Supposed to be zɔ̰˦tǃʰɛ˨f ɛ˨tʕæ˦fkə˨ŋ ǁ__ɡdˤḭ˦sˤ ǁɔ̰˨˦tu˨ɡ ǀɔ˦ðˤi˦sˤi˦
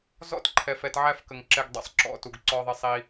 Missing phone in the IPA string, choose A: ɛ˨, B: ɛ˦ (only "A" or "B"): B